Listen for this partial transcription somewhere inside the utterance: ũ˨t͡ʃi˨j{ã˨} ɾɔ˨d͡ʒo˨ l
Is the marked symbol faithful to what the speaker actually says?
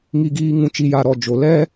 no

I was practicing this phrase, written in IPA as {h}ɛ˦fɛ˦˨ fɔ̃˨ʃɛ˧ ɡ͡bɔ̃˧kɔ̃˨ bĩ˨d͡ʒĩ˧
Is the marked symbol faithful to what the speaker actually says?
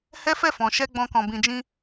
yes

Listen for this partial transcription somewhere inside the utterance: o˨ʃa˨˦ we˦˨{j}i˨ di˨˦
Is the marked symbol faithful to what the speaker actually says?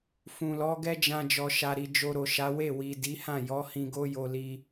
no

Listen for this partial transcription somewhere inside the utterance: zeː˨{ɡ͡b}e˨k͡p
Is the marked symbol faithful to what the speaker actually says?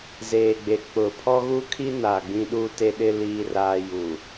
yes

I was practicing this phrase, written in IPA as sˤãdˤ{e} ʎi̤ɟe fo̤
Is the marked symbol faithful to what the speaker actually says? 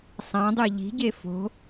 yes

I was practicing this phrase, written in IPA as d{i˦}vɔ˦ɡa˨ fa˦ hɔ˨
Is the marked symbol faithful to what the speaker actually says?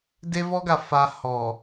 no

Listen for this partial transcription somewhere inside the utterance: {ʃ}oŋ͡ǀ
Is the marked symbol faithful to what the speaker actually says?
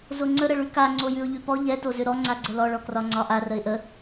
no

